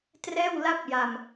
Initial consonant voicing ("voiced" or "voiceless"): voiceless